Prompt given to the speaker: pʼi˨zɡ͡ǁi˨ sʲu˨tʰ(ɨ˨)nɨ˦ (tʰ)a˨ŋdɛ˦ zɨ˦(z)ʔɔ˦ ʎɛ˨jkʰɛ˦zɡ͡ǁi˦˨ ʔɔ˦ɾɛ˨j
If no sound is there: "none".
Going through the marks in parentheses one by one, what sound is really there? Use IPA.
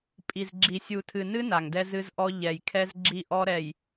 ɨ˨, n, z

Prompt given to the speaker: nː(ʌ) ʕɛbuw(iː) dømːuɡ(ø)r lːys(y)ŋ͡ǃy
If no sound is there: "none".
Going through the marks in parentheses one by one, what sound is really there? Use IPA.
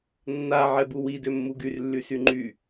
a, i, y, y

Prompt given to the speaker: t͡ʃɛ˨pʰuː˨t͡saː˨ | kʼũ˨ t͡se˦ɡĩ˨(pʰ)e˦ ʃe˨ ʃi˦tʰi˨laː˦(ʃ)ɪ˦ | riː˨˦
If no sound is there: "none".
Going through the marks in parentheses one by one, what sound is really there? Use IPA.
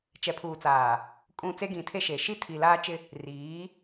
tʰ, t͡ʃ

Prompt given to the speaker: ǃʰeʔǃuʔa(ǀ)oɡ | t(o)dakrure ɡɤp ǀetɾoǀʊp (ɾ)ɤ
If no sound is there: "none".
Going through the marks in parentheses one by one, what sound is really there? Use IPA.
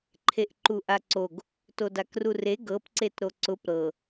ǀ, o, ɾ

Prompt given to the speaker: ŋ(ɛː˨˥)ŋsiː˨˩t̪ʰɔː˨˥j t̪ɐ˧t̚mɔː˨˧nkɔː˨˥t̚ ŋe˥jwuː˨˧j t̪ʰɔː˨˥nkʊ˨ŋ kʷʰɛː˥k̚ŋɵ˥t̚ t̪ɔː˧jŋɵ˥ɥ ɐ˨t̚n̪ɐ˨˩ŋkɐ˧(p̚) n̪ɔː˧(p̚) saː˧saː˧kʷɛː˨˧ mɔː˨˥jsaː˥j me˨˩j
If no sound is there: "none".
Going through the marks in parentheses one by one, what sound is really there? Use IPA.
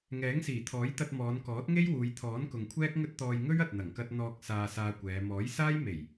ɛː˨˥, t̚, k̚

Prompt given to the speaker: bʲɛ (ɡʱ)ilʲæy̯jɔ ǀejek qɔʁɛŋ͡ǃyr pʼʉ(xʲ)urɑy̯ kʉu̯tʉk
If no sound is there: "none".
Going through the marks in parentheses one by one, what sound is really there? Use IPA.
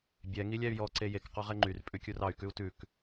ŋ, kʲ

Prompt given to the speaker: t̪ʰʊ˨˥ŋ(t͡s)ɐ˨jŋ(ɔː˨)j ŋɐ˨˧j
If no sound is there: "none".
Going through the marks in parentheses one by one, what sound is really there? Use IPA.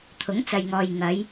t͡s, ɔː˨

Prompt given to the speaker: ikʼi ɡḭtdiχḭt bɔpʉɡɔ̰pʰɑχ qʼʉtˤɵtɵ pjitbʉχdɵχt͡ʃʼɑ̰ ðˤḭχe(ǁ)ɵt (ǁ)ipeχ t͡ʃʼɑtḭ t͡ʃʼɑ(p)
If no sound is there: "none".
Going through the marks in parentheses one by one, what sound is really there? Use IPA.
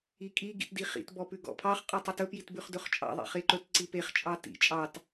ǃ, ǀ, t

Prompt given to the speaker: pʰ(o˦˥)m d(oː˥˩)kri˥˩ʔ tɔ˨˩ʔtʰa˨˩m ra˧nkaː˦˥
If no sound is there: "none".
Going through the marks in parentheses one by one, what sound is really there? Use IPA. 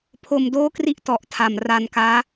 o˧, oː˥˩

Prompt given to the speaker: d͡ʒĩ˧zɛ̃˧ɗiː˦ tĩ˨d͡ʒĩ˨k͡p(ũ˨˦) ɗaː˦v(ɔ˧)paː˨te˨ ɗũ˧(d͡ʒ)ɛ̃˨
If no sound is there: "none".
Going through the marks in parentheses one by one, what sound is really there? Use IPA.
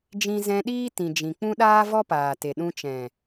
ũ˦, ɔ˦, t͡ʃ

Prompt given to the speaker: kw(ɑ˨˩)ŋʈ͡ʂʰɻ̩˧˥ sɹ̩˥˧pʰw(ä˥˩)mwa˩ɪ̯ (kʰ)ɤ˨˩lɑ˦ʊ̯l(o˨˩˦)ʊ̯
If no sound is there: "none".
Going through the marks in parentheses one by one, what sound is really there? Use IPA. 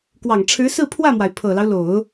ɑ˨˩, ä˥˩, pʰ, o˨˩˦

